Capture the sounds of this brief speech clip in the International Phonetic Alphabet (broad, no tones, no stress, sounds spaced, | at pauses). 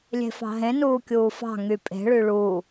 lʲ e̤ f ɑ̤ ɦ ẽ n uː kʲ uː f ɑ̤ ŋ y pʼ e̤ ɭ y ɭ u